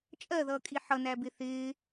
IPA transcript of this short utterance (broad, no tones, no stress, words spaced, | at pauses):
t͡ʃʼɜðʌːkʼi ħʌnæbɪ θɪː